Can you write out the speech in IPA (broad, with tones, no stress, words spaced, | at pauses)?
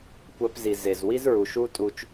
kʷæ˧pzi˨ze˨zwi˦z ɹu˨ʃu˦tʼu˧t͡ʃ